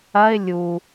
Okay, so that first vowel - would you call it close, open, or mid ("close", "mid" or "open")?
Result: open